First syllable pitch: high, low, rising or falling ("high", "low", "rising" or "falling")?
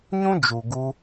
high